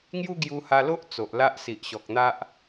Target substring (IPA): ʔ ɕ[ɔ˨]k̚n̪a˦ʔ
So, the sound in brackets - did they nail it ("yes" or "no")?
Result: yes